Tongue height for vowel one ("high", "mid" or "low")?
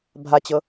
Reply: low